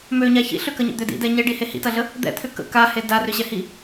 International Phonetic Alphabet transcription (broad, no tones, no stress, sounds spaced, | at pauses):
m ø ɲ a ç ḭ ɬ ʏ k ɐ ɲ ə̰ d̪ ʏ d ḭ d ɛ ɲ ɛ ɖ i h e h ḭ t ɐ ɮ ə | d̪ ɛ̰ t̪ʰ ʏ k ə̰ k a h e d a r ʏ ɕ ɛ h i